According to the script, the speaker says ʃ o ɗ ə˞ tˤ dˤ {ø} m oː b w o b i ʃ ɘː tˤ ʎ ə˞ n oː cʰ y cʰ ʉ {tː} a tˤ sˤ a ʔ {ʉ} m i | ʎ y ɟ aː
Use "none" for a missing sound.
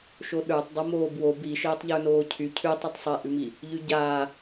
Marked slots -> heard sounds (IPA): ɘ, tˤ, ʉ

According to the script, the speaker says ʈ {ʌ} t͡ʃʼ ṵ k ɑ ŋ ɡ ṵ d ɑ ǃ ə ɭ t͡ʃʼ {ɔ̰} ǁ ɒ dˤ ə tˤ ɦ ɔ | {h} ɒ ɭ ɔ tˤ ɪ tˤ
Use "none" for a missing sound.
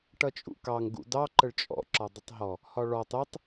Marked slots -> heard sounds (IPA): ʌ, ɔ̰, h

